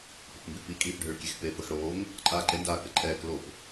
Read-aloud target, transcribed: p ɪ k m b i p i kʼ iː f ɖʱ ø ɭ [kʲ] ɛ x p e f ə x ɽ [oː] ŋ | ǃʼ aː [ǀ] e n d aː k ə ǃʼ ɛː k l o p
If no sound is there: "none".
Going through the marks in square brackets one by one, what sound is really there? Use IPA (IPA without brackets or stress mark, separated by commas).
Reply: kʲ, oː, ǃ